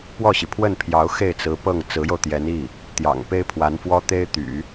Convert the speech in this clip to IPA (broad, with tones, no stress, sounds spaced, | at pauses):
p w ɔ˥˩ ɕ i˩ pʰ w ə˥˩ n pʰ j ɑ˧˥ ʊ̯ x e˥˩ ɪ̯ t͡s ɹ̩˧˥ p ɤ˥˩ ŋ t͡s ɹ̩˧˥ j o˧ ʊ̯ t̪ j ɛ˧˥ n i˥˩ | t̪ j ɑ̰˨˩ ŋ p e˥ ɪ̯ pʰ w a˧˥ n f w ɔ˥ t̪ e˥ ɪ̯ t̪ y̰˨˩˦